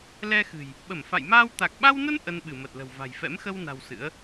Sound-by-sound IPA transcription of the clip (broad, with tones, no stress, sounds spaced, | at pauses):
l ɛ˧ x ɨ̤˨˩ j | ɓ ə˧˩ m f a̰˧˨ j m aː˧ w t̪ a˨˩ k̚ ɓ a˧ w n ə˧ n ʔ ə˧ n ɓ ɨ˧˩ m ə˨˩ t̚ l ə̤˨˩ w v a̤˨˩ j f ɛ̰˧˥ m x ə˧ w n a̤˨˩ w s ɨ̰˧˥ ə̯